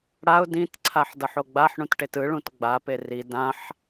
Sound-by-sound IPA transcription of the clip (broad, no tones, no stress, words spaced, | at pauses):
ɽaʊ̯ dĩtǀʰaħ dʌħoɡ͡baħɳũt ʈetɯɭũt ɡ͡bape ri dãħ